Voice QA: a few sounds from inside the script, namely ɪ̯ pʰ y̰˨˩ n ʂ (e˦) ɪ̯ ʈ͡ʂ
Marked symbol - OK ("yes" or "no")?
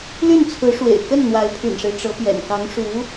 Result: yes